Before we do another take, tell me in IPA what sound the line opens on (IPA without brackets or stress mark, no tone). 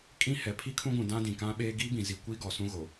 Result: kʼ